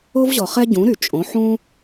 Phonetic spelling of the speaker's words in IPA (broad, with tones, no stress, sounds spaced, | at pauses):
o˥ v ʑ ɔ˩ χ ɛ˥ ɟ ũ˩˥ ɾ y˩ t͡ʃʼ õ˩˥ ħ ũ˥